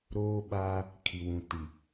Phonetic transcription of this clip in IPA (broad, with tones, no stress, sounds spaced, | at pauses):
ɾ oː˦ ɓ aː˦ | kʰ i˨ w ũ˨ t i˨